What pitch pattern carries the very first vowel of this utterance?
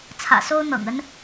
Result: low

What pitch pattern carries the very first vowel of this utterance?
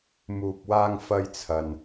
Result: low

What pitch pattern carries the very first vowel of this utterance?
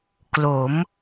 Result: rising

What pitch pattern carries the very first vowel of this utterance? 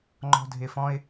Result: high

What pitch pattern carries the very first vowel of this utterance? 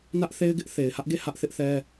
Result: high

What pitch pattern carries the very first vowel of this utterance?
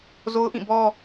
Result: high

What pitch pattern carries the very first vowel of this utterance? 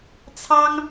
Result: high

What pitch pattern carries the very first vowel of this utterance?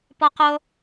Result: high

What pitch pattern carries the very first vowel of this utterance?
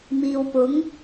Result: low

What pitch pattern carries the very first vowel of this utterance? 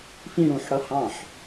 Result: falling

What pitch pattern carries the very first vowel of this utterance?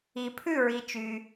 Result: low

